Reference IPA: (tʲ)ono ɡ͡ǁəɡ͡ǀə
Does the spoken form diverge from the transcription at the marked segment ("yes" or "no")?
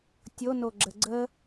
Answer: no